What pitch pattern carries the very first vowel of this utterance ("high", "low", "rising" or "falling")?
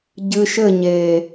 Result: low